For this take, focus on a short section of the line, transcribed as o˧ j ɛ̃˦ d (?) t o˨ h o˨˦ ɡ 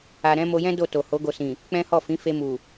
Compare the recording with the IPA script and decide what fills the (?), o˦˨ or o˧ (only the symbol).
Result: o˦˨